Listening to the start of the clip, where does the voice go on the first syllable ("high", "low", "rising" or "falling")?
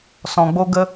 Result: low